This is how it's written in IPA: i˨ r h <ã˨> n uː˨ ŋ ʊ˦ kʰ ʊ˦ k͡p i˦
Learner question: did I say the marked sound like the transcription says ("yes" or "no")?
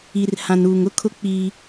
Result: yes